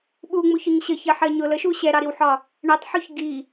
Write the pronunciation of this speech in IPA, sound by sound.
ɓ u ŋ͡m u ç ʊ ɲ ɕ ə ç ɜ ħ ɜ ɲ ʊ l ə ʃ u ɕ ɛ ɾ ɑ ɾ i w ħ ɒ | ɳ ɛ tˤ ħ u ç ɡ i

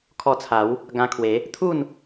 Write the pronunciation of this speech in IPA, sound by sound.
kʰ ɔ˧ t͡sʰ a˨˦ w | ɡ ã˧ kʰ w e˨˦ | t̪ʰ u˥˧ n

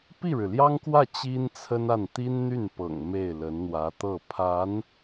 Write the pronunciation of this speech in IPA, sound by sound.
p i˥˩ ɻ ɻ̩˩ l j ɑ˥ ŋ k w ä˥˩ t͡ɕ i˥ n t͡sʰ ə˥ n a˥˩ n t̪ i˥ n n̪ y˥˩ n p ɤ̰˨˩ ŋ m e˥˩ ɪ̯ l ə˧˥ n n̪ w ä˧˥ t̪ ɤ˥˩ pʰ a˧˥ n

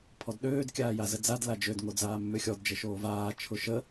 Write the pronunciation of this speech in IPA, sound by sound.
pʰ ɔ d ɗ øː d kʲ aː j a z ə d͡z a d l a d͡ʒ ø d ŋ o d͡z aː mː ʏ xʲ ɔ d d͡ʒ ə ʃ oː v aː t͡ʃʰ ʊ ʃ ə

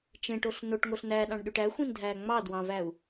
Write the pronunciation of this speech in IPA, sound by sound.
t͡ʃ ẽ ʈ o ɬ n o ʈ ŋ o ɬ n æ ɗ ɑ̃ ɳ ɗ y ʈ æ xʷ ĩ n dʱ æː ŋ͡m ɑ d w ɑ̃ v æ u̯

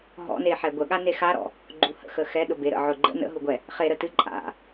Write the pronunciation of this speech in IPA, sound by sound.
ɦ ɔ̰ n e ħ ɛ ɡʷ ə ɠ a n e x a ɾ ɔ̰ | ɡ͡ǃ u h ə̰ x ə x ɛ ɗ ʊ b e ɾ ə̰ ʕ ʊ ɡ͡ǃ ə̰ n ə̰ ɦ u ɡʷ ɛ | χ e ɾ ə t ɨ ǃʼ a̰

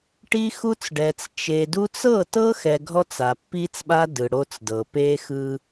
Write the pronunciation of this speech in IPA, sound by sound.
ʈ i˦ x u˦ t͡s ɖ ɛ˨ t͡s t͡ʃ e˨ d u˦ t͡s ɤ˦˨ t ɤ˦ x ɛ˨ ɡʱ ɔ˦ t͡s a˨ pː i˦ t͡s ɓ a˦ d ɯ˨ ɽ o˦ t͡s d ɤ˨ p e˦ x ɯ˦

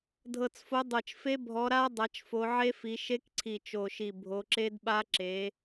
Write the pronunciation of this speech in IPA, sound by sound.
dʱ ɤ˨˩ t͡s f o˨˦ dˤ ɤ˨˩ t͡ʃ f e˦˥ bʱ ɔ˨˦ ɾ a˦˥ dˤ a˨˦ t͡ʃ f o˨˦ ʕ e˦˥ f i˨˦ ʃ e˦˥ k ǀʰ i˨˩ t͡ʃ o˨˩ ʃ i˨˩ bʱ o˨˦ ǁ e˦˥ d ɓ a˦˥ ǁ e˨˦

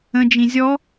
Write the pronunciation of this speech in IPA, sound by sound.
ə̃ d͡ʒ ĩ zʲ ɔ

